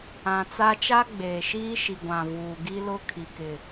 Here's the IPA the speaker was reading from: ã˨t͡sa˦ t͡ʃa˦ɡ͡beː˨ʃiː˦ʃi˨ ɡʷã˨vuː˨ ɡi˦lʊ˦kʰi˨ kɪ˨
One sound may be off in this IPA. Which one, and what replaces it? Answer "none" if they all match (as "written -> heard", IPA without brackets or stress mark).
none